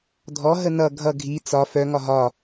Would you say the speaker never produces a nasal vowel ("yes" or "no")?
yes